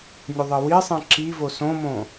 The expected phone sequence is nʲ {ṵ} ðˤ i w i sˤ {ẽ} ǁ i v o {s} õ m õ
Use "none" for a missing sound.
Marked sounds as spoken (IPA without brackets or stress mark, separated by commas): u, ĩ, s